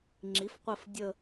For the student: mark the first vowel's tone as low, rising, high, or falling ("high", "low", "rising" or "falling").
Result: rising